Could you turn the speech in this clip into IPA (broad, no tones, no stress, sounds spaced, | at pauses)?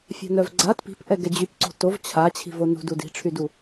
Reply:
fʲ a̤ n œ v ɡ͡ǀ a t p i̤ p ʔ ɛ ɡ ɛ d͡ʑ y p ǀ o̤ t o v t͡ɕʰ a t͡ɕʰ i̤ v o n ṳ d u d i̤ ʈ͡ʂʰ y d u